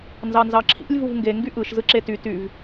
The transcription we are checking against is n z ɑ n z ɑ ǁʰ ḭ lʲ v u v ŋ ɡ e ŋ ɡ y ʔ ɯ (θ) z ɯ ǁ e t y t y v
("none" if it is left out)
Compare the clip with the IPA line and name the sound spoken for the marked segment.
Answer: ʃ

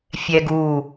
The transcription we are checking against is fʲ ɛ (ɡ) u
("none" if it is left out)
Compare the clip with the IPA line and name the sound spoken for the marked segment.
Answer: ɡ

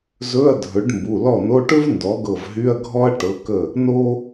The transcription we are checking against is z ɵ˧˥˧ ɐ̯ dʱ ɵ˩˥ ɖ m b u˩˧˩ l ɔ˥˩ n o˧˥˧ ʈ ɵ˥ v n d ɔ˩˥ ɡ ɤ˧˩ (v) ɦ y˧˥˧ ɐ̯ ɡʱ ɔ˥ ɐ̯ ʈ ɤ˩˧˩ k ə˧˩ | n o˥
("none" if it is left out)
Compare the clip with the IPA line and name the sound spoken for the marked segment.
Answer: v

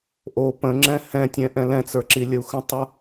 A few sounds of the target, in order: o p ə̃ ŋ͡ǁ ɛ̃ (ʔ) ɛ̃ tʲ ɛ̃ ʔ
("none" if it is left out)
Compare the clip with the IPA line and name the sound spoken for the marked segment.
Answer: h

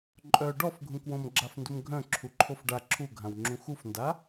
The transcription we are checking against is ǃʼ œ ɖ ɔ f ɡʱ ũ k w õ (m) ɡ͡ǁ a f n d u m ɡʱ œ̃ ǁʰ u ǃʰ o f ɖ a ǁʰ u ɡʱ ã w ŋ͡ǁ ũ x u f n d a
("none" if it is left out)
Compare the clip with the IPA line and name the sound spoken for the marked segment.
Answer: m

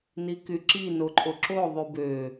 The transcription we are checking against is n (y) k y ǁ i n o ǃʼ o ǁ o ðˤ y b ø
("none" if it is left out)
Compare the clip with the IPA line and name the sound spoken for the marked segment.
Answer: i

